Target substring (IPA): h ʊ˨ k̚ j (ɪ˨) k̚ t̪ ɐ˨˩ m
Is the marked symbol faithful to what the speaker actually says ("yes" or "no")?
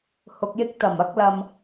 no